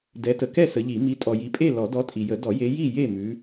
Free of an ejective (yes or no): no